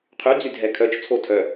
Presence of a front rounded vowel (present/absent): present